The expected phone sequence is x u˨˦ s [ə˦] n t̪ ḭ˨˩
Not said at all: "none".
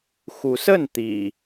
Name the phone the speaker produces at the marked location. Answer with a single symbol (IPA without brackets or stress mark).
ə˥˨